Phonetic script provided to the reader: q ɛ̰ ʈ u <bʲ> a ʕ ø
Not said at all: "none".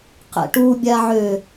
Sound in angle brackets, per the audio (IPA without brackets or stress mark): bʲ